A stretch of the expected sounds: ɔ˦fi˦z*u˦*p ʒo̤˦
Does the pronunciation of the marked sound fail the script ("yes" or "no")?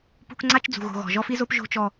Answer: yes